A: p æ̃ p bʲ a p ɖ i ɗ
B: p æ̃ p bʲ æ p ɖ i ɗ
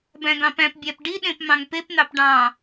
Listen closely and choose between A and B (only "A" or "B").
B